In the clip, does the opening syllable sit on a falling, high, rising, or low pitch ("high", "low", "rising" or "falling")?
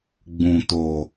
low